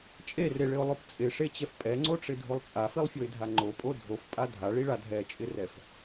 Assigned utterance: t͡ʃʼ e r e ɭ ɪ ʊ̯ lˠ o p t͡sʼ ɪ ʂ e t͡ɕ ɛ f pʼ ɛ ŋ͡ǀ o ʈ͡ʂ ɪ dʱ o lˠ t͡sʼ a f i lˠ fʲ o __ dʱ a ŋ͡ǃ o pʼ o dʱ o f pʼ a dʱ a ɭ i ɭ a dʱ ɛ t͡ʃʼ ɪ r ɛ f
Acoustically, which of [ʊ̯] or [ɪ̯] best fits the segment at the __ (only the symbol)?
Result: ɪ̯